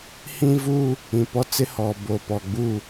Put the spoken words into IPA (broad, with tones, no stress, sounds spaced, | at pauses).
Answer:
h ĩ˦ v u˦ | ĩ˨ p ɔ˦ t͡s ɪ˦ h ɔ˨ b o˨ p ɔ˨ ɡ͡b u˦˨